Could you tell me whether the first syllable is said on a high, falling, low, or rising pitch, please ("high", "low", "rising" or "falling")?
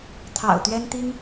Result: low